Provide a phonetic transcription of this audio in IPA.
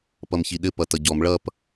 p ʌ m ç i ɗ ɘ p ʌ t ʌ ɟ ɔ m ɭ ʌ p

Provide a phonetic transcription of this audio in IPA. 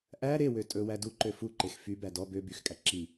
ʔ æ ɾ e w ø tʼ ɵ w æ d u ǃ ø f u ǃ e x f y b æ d ɔ b ø b y x kʼ æ ǁ i

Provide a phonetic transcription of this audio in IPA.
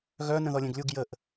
ɣ œ n ə̃ ð ɔ lʲ ẽ ɡ lʲ u ɡ j ə ʔ

